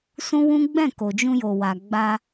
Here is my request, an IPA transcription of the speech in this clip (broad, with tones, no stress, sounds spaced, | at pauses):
s ũ˦ w ũ˦ ɡ͡b ɛ̃˦˨ k o˨ d͡ʒ ũ˧ j o˨ w a˨ ɡ͡b a˧